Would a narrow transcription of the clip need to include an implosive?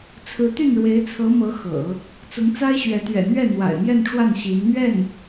no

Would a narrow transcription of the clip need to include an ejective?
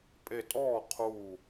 yes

